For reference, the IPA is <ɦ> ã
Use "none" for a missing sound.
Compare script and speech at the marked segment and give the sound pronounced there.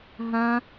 ɦ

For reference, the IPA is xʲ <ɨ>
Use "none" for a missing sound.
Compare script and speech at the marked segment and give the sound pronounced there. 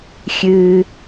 ɨ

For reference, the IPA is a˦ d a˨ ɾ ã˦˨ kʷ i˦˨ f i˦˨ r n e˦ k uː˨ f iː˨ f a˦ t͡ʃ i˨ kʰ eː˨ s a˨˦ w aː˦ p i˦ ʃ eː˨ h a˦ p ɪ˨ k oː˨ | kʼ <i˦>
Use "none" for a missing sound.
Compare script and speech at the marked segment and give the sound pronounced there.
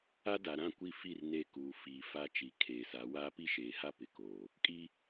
i˦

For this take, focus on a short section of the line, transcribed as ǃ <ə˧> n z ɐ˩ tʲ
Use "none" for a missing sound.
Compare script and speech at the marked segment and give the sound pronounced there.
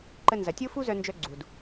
ə˧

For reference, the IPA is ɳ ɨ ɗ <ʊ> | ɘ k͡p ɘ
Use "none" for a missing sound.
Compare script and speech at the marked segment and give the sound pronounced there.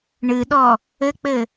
ɔ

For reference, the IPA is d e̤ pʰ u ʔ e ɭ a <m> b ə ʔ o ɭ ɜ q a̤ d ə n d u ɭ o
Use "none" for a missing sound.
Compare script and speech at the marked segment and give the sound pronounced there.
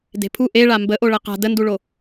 m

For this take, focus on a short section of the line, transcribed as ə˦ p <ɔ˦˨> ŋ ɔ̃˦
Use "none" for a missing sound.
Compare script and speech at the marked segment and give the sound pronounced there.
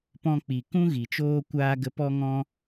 ɔ˦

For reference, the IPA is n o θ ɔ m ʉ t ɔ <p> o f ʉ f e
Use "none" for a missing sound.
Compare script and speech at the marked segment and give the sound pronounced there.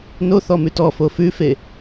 f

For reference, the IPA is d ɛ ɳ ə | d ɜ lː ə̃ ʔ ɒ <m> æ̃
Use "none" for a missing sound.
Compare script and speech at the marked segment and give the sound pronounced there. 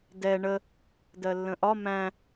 m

